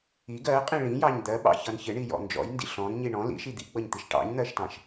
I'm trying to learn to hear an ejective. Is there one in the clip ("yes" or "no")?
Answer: yes